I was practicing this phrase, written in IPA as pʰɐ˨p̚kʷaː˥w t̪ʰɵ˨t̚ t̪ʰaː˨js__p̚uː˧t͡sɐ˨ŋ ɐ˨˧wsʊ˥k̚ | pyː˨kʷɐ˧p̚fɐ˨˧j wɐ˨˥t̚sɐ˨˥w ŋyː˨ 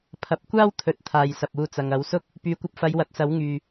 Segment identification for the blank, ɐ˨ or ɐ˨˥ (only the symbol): ɐ˨